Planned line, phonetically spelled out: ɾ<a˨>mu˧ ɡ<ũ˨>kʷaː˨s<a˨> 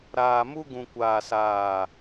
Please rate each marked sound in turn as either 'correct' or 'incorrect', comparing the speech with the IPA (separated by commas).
incorrect, correct, incorrect